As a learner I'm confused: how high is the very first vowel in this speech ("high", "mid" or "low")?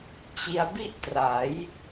high